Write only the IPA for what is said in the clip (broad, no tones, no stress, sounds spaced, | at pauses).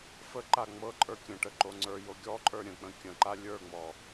f ə ǃ a ŋ͡m ɤ ǃʼ ə˞ kʲ ə̃ ʈ ə ǃ o ŋ͡ǀ ə˞ j o ɡʲ ɔ ǃʼ ə˞ ɾʲ ə̃ k͡p ə̃ kʲ ə̃ ǃ a lʲ ə˞ ŋ͡m ɔ